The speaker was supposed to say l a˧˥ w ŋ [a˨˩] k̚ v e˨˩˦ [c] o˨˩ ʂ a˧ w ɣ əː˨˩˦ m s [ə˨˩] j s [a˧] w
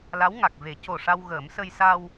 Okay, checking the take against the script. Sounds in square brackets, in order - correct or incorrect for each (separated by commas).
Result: correct, correct, incorrect, correct